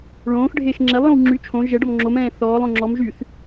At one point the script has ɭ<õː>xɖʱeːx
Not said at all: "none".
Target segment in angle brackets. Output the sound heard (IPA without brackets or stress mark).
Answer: õː